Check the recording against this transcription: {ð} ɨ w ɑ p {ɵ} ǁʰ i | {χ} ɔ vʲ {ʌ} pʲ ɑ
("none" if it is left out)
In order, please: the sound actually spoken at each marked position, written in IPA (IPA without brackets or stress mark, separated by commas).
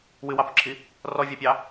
w, ɵ, r, ɑ